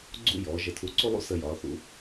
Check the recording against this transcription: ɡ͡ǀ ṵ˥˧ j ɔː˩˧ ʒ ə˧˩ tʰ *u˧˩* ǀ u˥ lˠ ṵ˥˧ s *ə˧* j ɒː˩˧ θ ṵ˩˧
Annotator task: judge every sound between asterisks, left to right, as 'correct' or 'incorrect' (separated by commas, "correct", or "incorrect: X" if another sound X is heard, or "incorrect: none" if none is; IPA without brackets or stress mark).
correct, correct